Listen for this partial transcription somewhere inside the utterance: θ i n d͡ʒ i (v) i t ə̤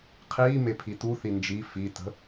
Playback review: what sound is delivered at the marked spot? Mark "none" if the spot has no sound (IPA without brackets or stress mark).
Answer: f